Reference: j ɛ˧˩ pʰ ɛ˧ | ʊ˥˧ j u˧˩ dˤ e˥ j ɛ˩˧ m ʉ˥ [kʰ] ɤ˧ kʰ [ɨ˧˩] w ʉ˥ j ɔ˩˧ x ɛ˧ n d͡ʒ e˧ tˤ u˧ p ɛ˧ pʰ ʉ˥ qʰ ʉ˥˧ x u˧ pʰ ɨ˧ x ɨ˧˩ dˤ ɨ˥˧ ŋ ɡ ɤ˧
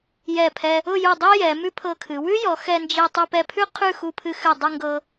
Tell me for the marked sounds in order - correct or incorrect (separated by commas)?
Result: incorrect, incorrect